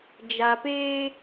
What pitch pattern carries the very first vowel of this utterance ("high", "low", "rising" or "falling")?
low